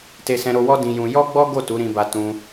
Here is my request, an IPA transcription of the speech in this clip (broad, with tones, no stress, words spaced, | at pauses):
te˧sɛ̃˧ɾo˧wɔ˦ dĩ˧jũ˧ jɔ˦ ɡ͡bɔ˦ɡo˦˨ tu˨˦ɾĩ˧ba˧ tũ˧